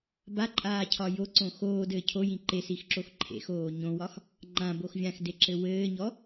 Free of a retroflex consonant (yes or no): yes